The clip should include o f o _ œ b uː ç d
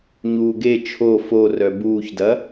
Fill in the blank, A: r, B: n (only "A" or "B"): A